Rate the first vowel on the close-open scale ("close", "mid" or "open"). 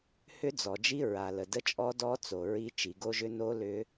close